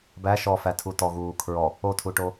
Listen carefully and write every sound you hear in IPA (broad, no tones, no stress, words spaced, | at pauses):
bæ ʃɔfætʰu tɔɣuː kʰɹɔ | otʰuʈo